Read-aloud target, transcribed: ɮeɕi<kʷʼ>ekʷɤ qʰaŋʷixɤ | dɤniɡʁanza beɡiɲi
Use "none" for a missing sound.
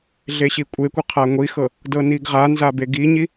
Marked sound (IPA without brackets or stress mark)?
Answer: kʷʼ